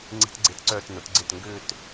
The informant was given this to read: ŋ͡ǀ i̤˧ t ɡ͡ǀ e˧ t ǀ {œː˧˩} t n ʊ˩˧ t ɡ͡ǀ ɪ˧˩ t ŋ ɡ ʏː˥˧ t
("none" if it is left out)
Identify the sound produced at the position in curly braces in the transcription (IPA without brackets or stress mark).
œː˧˩